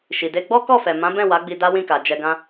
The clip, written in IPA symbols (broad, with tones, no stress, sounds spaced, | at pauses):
ʃ i˨ d e˧ ɡ͡b ɔ˦ k ɔ˦˨ f ɛ˨ m ã˨˦ b ɛ̃˦˨ w a˨˦ ɡ͡b i˧ d a˦ w ĩ˦˨ k a˨ d͡ʒ ɛ˧ ɡ ã˦